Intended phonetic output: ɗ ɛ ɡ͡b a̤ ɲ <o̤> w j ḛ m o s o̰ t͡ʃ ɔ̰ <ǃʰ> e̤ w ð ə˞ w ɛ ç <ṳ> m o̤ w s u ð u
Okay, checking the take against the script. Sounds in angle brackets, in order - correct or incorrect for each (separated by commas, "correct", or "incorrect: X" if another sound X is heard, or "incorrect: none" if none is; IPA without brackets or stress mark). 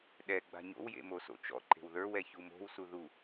incorrect: o̰, incorrect: ǃ, incorrect: u